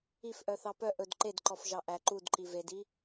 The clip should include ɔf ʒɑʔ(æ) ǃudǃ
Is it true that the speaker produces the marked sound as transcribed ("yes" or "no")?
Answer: yes